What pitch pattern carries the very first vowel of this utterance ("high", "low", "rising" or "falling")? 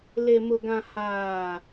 low